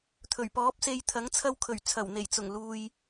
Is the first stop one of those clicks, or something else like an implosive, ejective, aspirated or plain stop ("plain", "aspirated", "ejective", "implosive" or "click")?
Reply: aspirated